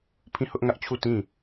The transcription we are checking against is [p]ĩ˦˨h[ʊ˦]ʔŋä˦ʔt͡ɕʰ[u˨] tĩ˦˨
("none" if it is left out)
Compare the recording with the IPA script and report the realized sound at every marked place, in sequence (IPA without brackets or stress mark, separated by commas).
pʰ, ʊ˦, u˦˨